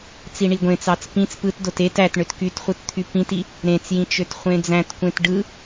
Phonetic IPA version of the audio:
t͡siɳiɡʷẽt͡sɑt͡s pĩt͡s pɯtdot et æt ɳøtkytχʷɯt t̪ʰypĩti | ɾẽt͡sjĩ t͡ʃøtχʷẽd͡zæ̃tkʷẽt ɖɯ

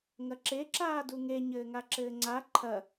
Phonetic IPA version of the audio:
ŋɐǁe ǁaːduŋe ɲɘːŋaǁɘːŋ͡ǀa ǃʰɐ

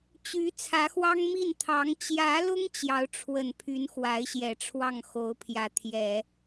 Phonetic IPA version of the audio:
t͡ɕy˧˥ t͡sʰä˧˥xwɑ˥ŋmi˥˩n t̪ʰɑ˧˥ŋ t͡ɕjä˧˥lʊ˥ŋ t͡ɕjɑ˧˥ʊ̯ʈ͡ʂʰwə˨˩n pʰy˧˥n xwa˧˥ɪ̯ɕjɛ˨˩ ʈ͡ʂʰwɑ˥˩ŋxo˧˥ʊ̯pʰjä˧˥ t̪ʰjɛ˨˩˦

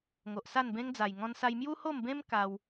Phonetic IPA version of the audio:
ŋo˨ʔsa˥˧nbẽ˦ŋd͡za˨˩j ŋɔ̃˧nsa˧j mju˦ho˥˧mbẽ˦m ka˧w

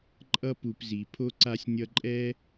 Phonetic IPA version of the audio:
ǃʼʌ˦ pu˨pzi˩ pʰo˦ ǀa˦sʲnʲʌ˦ ǃʼɛ˦

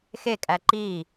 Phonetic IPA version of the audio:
xekʼæ ǃi

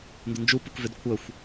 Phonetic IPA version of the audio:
ndʏnd͡ʒu pukvʏd kʷʰœxʷ

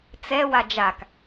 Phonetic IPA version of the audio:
t͡sɛ wad͡ʒak

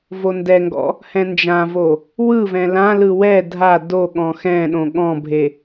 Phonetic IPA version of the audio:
vondɛŋɡɔ̰ | hɛ̃nd͡ʒãvo | wɯvɛ̃ lãlɯ wɛ dʱa doɠɔ̃ xɛ̃ɗõ ɠɔ̃bʱe

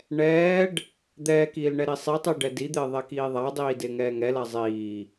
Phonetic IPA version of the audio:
ɳɛːɖ | d̪ɛːkiːlɳɛ ɾisˤitˤi ɖɛdid̪ɪː ðˤɛkiːðˤadˤiː dɪːŋɛːŋɛla zˤiː

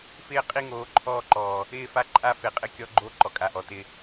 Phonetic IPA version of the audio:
fɪː˦ qʼi˦˨ŋoː˨˦ǃʰɔː˦˨ǃɔː˨ | ɪː˦˨fa˦ ǃʼa˦fe˨qʼɪ˦ kʲɔ˦ɡ͡ǃo˦ ǃɔ˨kʼa˨ʔɔ˨ tɪ˦

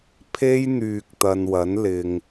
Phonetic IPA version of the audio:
pʰe˥jn̪yː˨k̚ t̪ɐ˨nwɐ˨˥nlɪ˨ŋ

